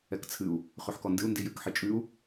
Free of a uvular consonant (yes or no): no